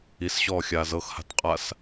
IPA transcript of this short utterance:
i s ɕ ɔː xʲ aː z ɤ x h a̤ t qʼ a s

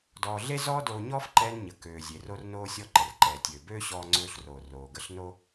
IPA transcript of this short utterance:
d ɔː˧ ɮ e˥ z ɔː˥ d oː˧ ɲ ɔː˥ f ǃ ɛː˧ n ɲ ə˩ k øː˩ zʲ e˩ r o˧ r n oː˧ sʲ ɔ˧ ǃ ə˩ r ǃ ɛː˩ tʲ øː˩ b øː˥ ɕ ɔː˧ ŋ͡ǀ øː˧ ɬ r oː˩ r oː˩ ɡ ə˧ ɬ n o˧

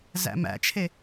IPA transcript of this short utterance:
z æ̰ m æ̰ t͡ʃʰ e

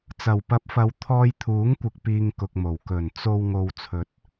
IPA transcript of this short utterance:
t͡s ɐ˨˩ w p ɐ˨˥ p̚ f ɐ˨ w t̪ʰ ɔː˧ j t̪ʰ uː˨˥ ŋ kʷ ɪ˨ k̚ p iː˨ ŋ k ʊ˨ k̚ m o˨˩ w k ɵ˨˩ n t͡s o˨ w ŋ o˨ w t͡sʰ ɵ˨˥ t̚

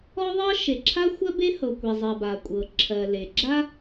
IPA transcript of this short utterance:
ɔ˥ ðˤ ɤ˥ ʃ e˩ ǁʰ a˥ xʷ ɜ˥ b e˥ h ɤ˩ kʷ e˩ zˤ ɜ˩ b a˩ kʷʼ ɤ˩ ǁʰ ɜ˩ l e˩ ɡ͡ǁ a˥

